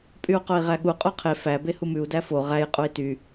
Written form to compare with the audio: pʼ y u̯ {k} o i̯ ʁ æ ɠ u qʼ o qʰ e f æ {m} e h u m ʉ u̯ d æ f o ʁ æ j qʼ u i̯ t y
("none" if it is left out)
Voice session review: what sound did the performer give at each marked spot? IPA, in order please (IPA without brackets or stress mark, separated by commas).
q, b